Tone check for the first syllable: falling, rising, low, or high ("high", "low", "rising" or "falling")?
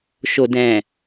low